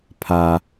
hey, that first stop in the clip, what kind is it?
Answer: aspirated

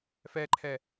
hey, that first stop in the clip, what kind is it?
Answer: click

